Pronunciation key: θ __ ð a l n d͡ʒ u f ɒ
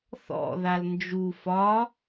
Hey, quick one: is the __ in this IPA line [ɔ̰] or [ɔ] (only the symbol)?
ɔ̰